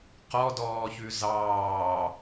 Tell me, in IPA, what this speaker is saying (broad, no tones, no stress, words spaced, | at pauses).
qɔdɔːçʉ zɑː